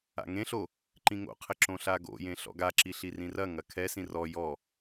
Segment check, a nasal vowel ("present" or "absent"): present